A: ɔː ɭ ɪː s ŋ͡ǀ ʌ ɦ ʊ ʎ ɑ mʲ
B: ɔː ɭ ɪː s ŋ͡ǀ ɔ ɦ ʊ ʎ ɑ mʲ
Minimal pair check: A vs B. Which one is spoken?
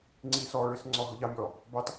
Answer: B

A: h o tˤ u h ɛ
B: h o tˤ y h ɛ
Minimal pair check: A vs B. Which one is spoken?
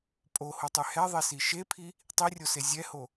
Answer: B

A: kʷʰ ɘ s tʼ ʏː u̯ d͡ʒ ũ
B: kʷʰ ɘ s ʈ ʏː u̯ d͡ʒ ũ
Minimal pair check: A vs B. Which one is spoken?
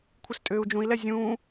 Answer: A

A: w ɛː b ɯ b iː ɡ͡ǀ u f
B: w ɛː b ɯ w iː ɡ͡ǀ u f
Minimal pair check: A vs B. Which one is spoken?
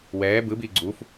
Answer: A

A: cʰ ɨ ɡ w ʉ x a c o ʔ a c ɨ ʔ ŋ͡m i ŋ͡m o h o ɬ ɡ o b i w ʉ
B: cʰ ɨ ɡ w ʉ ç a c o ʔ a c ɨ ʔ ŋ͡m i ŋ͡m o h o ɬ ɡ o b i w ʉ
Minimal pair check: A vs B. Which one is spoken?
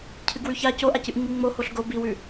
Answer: B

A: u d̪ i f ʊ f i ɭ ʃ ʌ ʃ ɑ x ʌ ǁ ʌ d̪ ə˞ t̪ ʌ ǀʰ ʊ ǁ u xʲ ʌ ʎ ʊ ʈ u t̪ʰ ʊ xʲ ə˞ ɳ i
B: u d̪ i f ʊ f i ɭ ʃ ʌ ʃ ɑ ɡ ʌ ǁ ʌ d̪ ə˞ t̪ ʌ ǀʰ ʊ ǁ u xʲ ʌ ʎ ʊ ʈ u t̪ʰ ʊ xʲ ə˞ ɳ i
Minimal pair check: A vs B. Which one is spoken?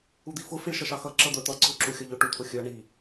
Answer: A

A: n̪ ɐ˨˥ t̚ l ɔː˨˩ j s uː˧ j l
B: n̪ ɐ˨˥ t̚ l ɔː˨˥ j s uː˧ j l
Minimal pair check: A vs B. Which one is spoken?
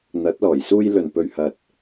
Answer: A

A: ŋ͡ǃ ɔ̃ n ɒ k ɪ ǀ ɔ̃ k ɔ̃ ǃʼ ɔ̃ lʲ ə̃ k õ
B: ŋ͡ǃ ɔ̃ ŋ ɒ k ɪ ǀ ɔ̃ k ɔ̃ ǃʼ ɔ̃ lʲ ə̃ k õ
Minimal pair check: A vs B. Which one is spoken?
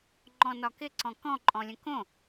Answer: A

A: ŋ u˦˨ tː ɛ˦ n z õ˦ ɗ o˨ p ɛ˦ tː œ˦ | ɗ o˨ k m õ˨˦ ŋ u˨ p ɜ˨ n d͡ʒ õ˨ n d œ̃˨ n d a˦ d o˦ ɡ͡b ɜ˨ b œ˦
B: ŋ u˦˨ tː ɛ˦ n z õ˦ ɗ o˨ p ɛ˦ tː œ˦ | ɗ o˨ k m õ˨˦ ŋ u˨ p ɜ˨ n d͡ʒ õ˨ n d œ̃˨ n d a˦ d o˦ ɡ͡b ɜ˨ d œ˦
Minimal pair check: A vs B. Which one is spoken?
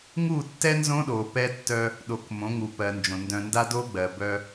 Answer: A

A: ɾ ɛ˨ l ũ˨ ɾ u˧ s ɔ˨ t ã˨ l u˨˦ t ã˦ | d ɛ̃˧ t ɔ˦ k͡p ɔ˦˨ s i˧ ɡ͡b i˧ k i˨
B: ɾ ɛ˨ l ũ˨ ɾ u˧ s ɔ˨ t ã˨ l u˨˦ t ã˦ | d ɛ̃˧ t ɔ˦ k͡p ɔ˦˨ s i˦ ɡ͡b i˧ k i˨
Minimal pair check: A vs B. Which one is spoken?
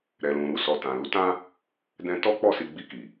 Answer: A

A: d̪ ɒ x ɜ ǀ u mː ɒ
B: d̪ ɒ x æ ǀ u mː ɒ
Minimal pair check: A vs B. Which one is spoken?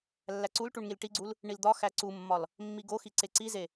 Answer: B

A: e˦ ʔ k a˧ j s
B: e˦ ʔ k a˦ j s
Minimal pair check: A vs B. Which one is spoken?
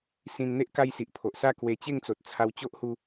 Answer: B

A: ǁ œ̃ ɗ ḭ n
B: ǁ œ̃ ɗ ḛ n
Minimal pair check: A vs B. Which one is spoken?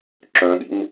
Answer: A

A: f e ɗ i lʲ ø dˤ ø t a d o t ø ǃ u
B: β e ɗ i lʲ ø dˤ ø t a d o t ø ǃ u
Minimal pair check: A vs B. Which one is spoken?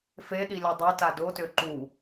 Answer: A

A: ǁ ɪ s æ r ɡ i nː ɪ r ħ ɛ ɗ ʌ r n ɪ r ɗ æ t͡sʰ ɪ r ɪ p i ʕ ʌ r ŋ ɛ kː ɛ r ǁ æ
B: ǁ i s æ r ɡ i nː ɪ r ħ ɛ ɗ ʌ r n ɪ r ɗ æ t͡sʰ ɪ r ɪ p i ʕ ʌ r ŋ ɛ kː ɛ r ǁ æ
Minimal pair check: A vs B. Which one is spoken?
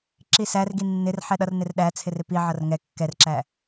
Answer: B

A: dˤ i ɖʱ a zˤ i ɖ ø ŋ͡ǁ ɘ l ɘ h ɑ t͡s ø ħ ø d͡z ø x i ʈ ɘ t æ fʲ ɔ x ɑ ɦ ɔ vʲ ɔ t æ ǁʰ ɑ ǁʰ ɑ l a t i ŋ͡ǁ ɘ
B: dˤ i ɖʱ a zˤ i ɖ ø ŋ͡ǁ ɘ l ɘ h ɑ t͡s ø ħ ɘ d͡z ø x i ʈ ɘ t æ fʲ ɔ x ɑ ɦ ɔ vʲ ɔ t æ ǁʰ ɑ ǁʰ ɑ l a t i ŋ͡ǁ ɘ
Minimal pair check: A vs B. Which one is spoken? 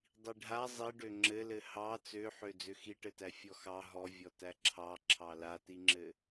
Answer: A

